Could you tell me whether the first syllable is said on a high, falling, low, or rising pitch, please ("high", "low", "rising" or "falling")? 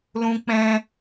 high